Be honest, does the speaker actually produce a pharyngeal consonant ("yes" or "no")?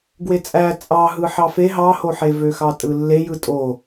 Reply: yes